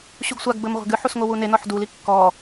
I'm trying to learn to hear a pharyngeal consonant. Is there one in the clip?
yes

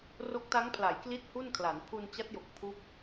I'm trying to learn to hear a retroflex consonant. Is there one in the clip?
no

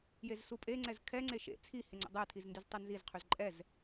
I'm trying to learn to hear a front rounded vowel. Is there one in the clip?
yes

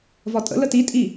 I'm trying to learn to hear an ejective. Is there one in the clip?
yes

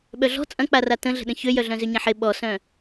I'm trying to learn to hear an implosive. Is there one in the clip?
yes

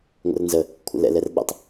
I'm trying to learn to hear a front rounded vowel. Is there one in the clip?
no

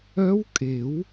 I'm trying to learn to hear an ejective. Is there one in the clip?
yes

